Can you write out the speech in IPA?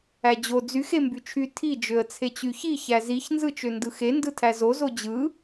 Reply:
æd͡ʑo d͡zyx embyt͡ʃʰy tʰi d͡ʒøə̯t͡sʰet͡ɕyçi çæziç nzɯt͡ʃøndɯxe ndɯtʰæzo zod͡ʑɯ

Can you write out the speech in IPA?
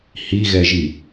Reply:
hiɣɛʒi

